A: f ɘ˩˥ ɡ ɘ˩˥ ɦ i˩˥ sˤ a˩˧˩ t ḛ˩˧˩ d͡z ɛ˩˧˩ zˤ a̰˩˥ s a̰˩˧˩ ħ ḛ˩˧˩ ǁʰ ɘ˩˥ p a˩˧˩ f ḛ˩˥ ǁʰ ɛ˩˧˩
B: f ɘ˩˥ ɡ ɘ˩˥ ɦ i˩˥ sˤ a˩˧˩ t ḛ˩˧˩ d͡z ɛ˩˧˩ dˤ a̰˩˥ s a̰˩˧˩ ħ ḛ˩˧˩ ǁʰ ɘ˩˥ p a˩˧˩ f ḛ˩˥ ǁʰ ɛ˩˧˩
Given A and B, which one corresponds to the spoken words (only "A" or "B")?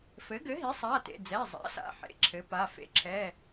A